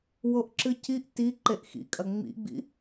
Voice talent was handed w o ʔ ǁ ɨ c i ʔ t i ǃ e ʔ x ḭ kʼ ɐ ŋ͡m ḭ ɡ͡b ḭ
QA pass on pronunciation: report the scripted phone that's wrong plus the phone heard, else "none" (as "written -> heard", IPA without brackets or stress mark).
none